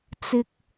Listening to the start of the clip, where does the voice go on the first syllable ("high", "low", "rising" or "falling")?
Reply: high